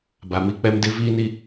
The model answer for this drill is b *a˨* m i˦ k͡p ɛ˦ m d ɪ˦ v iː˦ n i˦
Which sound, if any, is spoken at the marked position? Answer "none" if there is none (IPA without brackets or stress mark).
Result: a˨